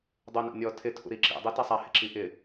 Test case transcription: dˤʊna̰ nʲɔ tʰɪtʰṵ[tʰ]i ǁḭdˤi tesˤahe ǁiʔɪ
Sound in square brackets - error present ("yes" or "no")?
yes